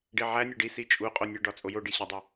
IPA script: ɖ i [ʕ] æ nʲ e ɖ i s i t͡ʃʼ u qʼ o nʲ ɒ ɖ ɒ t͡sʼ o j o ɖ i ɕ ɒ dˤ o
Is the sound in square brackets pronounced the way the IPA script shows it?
yes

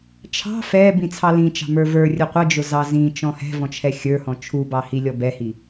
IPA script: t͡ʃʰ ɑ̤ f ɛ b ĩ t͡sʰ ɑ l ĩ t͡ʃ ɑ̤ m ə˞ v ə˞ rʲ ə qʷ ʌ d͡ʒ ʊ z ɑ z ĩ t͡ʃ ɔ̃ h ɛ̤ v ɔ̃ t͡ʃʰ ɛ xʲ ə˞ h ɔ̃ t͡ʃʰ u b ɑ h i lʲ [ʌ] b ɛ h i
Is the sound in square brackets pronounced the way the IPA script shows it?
no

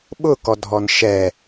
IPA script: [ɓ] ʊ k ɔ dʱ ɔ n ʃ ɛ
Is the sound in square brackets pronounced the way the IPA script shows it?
yes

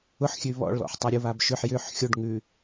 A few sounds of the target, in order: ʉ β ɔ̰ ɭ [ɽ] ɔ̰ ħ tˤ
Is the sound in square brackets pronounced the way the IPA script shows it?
no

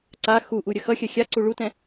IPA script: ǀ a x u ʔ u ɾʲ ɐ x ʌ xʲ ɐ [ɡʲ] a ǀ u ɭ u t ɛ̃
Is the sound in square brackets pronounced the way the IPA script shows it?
no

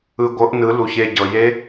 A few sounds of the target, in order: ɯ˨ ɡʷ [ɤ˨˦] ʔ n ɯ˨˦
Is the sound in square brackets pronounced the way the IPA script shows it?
yes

